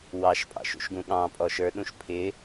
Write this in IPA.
w ɑ ʃ pʼ ɑ̰ ʃ ṵ ʃ ɡ ũ ɠ ɑ̃ pʼ ɔ ʃ ə˞ ɗ ũ ʃ pʰ ɪ

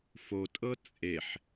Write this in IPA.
f o tʼ ɤ t͡sʼ e ħ

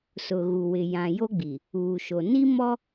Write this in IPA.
s ʊ˨ ɣ u˨ w ɪ˨ j ã˨ j o˦ ɡ͡b i˨ | uː˨ ʃ o˨ n i˦ m ɔ˦

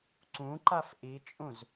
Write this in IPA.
ǀ ũ ǃ a f ʔ i t͡ʃʼ ũ z

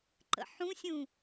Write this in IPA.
ǃ ə̰ ħ ũ sʲ ũ

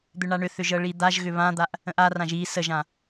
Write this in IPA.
d̪ ʏ ɳ a ɳ ʏ θ ʏ ʒ ɤ ɭ i d̪ a ʒ ɣ ʏ β ã d̪ a ʔ | ə̃ ʔ a r ã ʒ i s ə ʒ ã

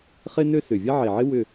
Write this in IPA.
χ ɪ˦ n ø˦ s ʏ˨˩ vʲ ɐ˦ ʕ e˨˩ ʕ ɪ˦ w ʏ˦˨

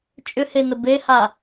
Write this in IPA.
t͡ʃʼ ʏ h e n ə b e h a

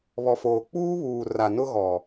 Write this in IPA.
β ɔ˨ f oː˨ k͡p uː˦ β uː˨ r a˨ n ʊ˦ ɣ ɔ˨

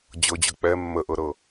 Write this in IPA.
d͡ʑ ɤ d͡ʑ ɤ k͡p ɛ mː ə ʔ ɤ ɾ ɤ

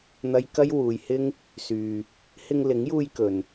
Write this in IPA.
n̪ ɐ˥ j k ɐ˥ j w uː˨˧ j h ɪ˥ ŋ | s yː˧ | h ɪ˧ ŋ l ɪ˨˥ ŋ j uː˧ j k ɵ˨ n

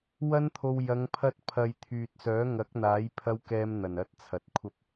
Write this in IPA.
w ɐ˥ n t̪ʰ o˧ w j ɐ˨˧ ŋ pʰ ɐ˥ t̚ pʰ ɐ˧ j t̪ʰ yː˨ t̚ s œː˨˥ ŋ ɐ˨˥ k̚ n̪ aː˨˥ j pʰ ɐ˥ w k ɛː˥ m n̪ ɐ˨˩ n ɐ˥ t̚ t͡sʰ ɐ˨ t̚ kʷʰ ɐ˥ p̚

